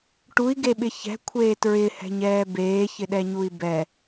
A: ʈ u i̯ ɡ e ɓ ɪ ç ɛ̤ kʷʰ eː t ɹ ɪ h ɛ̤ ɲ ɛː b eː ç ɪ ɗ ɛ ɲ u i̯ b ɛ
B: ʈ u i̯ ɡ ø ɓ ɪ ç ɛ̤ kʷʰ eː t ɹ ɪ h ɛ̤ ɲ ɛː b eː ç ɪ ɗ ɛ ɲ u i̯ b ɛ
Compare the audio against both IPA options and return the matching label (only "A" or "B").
A